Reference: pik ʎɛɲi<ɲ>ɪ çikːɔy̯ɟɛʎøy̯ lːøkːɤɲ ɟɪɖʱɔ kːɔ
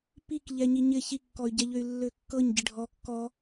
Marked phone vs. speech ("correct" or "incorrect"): correct